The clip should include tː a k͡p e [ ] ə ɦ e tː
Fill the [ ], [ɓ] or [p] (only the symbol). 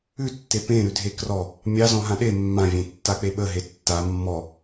ɓ